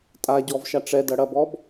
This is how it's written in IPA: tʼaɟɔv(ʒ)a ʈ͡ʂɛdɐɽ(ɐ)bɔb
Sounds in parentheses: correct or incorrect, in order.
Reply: incorrect, correct

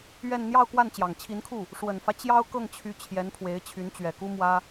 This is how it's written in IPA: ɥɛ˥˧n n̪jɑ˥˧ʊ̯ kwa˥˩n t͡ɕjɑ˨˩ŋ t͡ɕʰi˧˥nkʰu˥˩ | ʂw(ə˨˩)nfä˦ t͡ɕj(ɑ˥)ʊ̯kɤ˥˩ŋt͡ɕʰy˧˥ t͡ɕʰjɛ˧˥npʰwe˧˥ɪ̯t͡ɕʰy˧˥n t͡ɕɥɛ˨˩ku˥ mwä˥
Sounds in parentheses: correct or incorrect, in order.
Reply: correct, correct

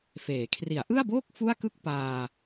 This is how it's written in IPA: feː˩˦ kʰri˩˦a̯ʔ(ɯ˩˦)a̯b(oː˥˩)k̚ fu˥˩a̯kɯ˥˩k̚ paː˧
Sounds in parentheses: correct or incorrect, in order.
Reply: incorrect, correct

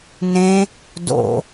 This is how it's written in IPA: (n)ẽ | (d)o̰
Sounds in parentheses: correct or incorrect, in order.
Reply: correct, correct

